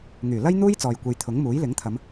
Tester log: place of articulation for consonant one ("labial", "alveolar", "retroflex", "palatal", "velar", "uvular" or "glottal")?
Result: velar